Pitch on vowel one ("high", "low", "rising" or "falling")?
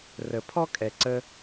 low